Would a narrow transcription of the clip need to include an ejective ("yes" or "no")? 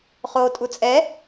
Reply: yes